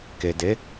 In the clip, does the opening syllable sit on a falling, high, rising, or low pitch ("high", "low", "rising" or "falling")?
low